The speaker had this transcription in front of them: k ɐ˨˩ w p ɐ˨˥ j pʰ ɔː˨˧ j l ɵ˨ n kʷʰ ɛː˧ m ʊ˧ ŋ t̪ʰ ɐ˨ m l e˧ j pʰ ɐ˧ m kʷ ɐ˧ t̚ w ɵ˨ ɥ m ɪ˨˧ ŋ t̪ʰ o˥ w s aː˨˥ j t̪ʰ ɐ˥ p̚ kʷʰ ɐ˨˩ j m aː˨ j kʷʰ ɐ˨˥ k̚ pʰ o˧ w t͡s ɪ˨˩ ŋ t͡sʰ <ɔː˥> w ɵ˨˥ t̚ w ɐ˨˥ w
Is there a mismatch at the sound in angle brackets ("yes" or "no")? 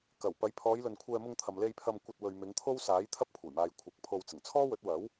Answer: no